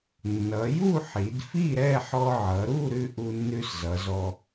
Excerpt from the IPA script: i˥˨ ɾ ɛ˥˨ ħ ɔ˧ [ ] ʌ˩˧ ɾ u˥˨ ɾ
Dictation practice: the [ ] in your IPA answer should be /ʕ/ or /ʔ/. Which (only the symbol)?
ʕ